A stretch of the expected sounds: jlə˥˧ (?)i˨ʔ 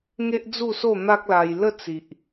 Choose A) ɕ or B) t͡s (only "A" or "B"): B